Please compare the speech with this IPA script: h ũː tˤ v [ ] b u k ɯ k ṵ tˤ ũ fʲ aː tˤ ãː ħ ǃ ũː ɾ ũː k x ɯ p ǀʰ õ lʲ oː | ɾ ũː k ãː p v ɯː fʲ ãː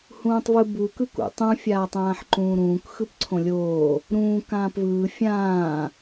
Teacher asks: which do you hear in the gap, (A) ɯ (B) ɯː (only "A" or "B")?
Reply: A